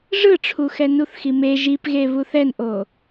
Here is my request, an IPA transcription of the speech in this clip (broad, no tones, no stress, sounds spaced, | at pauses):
ʐ ɯ ʈ͡ʂʰ u x ɛ n u θ x i m e ʒ i p ɣ e β u θ ɛ n ʔ o